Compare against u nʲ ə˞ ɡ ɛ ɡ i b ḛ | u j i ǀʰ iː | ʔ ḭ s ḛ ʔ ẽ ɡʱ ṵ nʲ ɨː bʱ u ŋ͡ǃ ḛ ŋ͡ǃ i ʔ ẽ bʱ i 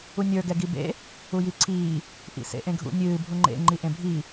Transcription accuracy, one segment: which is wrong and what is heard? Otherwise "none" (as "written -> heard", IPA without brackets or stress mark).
none